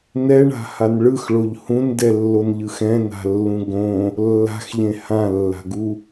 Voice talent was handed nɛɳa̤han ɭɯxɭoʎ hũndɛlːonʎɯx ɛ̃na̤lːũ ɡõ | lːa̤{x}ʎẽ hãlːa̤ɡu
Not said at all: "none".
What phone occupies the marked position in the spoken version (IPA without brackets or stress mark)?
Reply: x